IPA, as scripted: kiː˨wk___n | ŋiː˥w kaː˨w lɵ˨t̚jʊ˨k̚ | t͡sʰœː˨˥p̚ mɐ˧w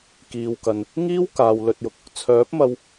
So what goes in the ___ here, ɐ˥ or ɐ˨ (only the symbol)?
ɐ˨